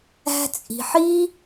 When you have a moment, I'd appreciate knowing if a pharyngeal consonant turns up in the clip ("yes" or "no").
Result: yes